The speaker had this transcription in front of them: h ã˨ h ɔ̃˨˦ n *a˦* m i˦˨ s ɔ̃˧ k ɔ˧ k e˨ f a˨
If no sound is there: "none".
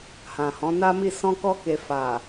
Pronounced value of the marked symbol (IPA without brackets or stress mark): a˦